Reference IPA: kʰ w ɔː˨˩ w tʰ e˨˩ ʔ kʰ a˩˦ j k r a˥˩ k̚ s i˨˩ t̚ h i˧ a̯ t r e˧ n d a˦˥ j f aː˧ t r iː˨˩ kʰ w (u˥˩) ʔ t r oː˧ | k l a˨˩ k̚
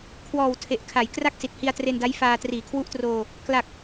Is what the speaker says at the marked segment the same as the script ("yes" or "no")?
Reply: no